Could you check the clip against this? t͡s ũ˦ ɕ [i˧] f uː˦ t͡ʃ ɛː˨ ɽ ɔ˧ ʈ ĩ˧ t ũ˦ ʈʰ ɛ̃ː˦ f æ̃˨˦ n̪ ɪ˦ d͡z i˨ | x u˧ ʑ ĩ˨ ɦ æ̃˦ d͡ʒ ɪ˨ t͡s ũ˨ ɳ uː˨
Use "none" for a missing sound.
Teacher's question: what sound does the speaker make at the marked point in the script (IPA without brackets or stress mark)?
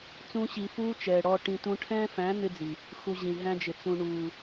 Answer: i˧